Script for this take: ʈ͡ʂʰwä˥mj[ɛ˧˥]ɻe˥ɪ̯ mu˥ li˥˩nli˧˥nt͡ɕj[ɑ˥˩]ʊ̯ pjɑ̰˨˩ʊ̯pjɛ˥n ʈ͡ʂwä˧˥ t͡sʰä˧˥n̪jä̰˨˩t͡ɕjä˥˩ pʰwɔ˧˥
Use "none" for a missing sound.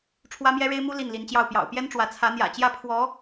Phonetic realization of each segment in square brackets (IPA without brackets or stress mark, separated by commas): ɛ˥, ɑ˥˩